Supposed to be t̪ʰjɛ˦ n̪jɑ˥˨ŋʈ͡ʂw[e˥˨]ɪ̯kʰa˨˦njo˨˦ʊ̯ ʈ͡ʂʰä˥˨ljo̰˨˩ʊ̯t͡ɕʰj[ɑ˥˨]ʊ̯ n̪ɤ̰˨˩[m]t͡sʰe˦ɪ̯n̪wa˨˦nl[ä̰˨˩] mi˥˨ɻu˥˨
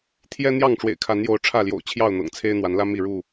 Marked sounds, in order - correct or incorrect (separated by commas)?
incorrect, correct, incorrect, incorrect